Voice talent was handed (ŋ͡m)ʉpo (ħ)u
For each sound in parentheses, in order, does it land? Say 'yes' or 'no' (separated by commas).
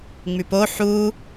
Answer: yes, yes